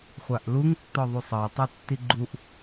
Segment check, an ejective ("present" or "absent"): absent